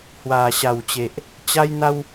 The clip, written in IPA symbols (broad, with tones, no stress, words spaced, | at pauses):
hwa˨˩ɕa˨˩w t͡ɕe˨ʔ | t͡ɕa˦jn̪a˦w